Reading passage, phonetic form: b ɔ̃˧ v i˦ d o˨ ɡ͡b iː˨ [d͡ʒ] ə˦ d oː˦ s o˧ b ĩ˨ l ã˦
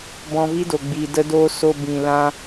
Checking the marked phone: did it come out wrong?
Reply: yes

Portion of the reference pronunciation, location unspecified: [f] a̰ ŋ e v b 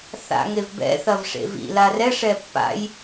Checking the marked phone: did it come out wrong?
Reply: yes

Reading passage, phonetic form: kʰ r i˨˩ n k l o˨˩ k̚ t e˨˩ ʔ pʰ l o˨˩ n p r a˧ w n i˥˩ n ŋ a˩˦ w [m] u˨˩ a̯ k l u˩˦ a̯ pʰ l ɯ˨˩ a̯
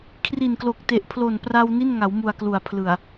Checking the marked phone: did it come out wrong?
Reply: no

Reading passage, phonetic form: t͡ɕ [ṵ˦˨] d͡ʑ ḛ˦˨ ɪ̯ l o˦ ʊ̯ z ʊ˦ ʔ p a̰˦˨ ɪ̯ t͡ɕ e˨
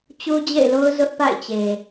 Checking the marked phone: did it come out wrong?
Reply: yes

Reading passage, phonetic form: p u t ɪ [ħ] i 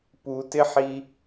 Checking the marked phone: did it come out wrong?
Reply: no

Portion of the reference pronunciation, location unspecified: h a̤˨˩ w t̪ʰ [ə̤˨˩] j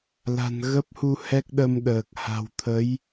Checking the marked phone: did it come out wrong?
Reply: yes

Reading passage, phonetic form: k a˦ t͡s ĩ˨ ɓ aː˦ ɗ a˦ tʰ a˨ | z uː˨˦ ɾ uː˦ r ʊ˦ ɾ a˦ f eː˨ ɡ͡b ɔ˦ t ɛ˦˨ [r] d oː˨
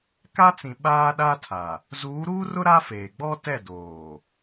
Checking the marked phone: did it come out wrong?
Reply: yes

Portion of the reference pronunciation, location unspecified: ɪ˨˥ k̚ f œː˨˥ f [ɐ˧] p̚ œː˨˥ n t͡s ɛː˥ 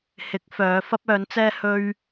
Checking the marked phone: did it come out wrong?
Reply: yes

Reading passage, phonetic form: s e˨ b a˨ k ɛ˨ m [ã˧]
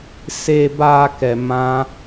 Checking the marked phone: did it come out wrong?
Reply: no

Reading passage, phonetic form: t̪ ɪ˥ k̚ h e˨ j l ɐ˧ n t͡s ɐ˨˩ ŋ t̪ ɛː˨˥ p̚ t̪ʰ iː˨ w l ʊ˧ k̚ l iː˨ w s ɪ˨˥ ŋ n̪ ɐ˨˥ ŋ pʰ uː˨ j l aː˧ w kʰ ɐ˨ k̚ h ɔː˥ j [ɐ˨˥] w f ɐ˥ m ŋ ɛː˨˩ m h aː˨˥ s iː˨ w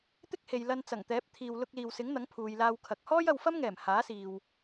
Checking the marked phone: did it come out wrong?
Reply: yes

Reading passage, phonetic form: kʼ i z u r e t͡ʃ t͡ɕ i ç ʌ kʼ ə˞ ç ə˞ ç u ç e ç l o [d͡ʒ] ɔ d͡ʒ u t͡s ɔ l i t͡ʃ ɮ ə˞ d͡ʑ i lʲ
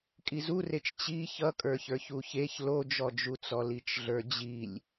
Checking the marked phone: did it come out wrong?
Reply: no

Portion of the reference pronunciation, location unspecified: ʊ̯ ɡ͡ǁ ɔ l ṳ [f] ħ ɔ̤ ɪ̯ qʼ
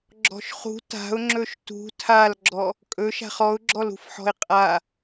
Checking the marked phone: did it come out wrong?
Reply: no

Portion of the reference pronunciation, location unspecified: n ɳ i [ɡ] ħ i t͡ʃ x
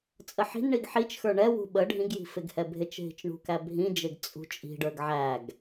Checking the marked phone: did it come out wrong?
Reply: no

